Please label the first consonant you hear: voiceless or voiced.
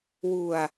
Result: voiced